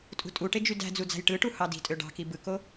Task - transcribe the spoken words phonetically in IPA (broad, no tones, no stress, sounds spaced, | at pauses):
tʼ ṳ tʼ u ʈ e d͡ʒ y d æ̤ d͡z u d͡z æ̤ j ʈ ɯ ʈ u h ɑ d i̤ tʼ ø ɖ ɑ̤ k i b ɯ k o